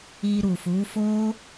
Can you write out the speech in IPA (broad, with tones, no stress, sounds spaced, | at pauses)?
i˧ ɾ u˨ f u˨˦ f o˦